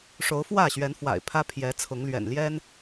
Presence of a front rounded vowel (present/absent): absent